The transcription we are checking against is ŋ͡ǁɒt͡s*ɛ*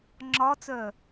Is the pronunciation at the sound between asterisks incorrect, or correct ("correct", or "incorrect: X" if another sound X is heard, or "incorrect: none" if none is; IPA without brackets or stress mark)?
incorrect: œ